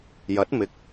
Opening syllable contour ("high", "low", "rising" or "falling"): rising